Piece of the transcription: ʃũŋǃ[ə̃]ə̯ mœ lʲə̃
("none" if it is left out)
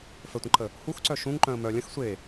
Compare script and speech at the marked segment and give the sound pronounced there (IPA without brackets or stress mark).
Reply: œ̃